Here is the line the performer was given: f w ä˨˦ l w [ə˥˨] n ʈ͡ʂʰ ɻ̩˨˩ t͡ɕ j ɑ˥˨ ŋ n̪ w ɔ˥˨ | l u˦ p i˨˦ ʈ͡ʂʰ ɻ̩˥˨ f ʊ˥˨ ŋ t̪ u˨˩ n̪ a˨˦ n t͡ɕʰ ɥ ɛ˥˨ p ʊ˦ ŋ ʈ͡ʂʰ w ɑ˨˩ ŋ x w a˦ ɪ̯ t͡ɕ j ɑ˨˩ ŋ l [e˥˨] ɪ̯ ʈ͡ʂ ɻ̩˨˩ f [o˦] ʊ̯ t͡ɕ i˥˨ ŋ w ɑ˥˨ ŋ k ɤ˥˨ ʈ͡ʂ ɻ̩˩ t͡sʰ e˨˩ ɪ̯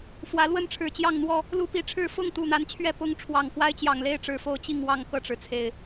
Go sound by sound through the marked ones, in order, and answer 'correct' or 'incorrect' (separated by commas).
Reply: correct, correct, correct